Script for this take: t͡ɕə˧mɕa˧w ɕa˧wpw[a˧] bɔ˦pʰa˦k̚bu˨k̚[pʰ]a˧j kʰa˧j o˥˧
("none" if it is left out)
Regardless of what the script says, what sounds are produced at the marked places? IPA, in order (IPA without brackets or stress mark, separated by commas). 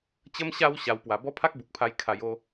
a˧, pʰ